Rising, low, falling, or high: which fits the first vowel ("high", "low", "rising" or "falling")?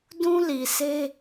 high